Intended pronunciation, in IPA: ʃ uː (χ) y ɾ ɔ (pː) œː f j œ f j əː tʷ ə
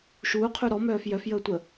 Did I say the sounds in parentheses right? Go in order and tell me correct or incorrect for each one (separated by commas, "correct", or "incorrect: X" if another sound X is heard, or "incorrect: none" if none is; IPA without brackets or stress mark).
incorrect: qʰ, incorrect: m